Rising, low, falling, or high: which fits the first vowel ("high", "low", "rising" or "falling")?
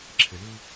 low